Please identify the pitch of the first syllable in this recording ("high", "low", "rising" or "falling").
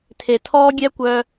low